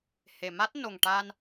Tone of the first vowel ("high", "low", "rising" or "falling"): low